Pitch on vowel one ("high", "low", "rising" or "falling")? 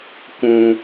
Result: low